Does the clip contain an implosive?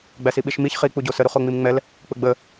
yes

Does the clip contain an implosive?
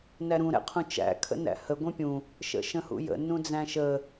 no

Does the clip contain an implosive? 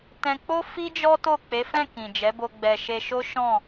no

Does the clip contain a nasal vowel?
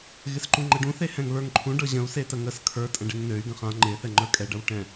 yes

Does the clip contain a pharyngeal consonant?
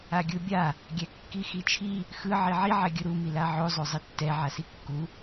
yes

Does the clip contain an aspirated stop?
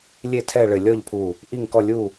yes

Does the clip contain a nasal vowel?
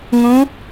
yes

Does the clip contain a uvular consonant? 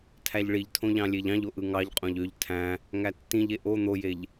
yes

